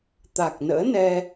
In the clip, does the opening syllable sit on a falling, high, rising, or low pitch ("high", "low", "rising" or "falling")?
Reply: low